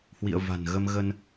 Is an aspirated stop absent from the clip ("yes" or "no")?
yes